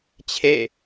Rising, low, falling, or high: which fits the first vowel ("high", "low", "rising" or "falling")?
falling